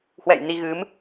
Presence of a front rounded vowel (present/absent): absent